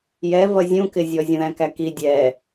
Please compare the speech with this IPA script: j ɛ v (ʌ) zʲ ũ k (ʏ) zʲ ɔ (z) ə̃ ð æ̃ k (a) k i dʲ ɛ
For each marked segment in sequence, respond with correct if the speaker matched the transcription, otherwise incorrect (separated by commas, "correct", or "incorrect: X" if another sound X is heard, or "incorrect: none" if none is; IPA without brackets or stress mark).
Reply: correct, incorrect: ɪ, incorrect: zʲ, incorrect: æ